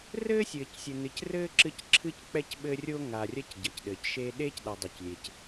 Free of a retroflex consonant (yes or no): yes